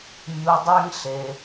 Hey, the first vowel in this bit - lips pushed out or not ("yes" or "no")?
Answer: yes